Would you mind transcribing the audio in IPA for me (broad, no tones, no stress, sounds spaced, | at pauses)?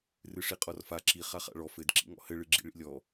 r ɨ ʂ i qʼ ɔ r f a ǁ i χ a χ a̰ ɭ ɔ f ɘ d ǁ ḭ ŋ ɔ̰ h ɘ ɭ ɨ ɡ͡ǁ ḭ ɭ ḭ lʲ ɔ